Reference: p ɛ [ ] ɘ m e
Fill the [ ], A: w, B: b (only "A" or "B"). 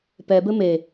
B